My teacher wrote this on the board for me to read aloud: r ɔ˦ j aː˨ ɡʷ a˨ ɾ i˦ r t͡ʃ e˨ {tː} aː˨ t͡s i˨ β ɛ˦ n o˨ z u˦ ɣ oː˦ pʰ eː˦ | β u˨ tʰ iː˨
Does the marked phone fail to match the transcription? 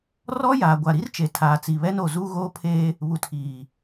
yes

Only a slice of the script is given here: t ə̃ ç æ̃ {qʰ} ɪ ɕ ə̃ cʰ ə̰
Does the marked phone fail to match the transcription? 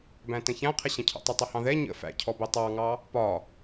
no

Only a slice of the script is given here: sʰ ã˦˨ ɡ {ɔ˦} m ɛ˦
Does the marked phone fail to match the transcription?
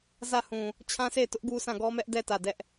no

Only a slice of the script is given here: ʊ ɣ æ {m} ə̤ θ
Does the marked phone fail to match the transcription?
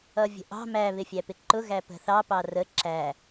yes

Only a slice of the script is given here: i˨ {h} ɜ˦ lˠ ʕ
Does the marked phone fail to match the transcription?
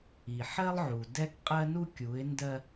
yes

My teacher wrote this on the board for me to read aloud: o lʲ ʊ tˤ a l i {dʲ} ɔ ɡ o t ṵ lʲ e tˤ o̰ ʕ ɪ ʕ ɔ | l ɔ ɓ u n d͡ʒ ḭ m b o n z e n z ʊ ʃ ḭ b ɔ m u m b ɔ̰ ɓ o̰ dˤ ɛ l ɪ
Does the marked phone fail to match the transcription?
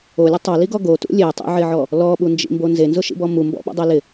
yes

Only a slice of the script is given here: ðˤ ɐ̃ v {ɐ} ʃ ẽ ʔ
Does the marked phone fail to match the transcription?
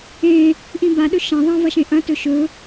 no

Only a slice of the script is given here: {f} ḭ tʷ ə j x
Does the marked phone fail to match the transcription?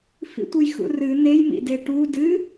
no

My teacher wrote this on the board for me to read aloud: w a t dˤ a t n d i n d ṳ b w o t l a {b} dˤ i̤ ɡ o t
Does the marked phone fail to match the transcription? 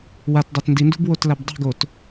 no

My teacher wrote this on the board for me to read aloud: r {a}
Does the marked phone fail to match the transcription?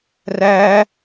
yes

